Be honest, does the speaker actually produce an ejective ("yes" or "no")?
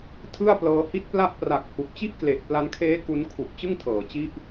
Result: no